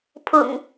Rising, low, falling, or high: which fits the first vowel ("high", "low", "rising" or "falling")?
low